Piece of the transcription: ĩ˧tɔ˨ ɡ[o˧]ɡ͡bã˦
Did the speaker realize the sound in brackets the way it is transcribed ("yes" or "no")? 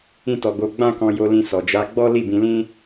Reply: no